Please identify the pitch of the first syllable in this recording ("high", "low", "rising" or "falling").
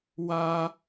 high